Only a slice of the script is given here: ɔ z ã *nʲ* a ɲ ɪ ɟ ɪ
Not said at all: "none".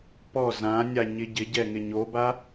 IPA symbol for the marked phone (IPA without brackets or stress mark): nʲ